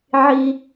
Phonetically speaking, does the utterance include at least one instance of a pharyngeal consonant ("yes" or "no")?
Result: yes